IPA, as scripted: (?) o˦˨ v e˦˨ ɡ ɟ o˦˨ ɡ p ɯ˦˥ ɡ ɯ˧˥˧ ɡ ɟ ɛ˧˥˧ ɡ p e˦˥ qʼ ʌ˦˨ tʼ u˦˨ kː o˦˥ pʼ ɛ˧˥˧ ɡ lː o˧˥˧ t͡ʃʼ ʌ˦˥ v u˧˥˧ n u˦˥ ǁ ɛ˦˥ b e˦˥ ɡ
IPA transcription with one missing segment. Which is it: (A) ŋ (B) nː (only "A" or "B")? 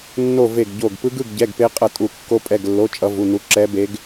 B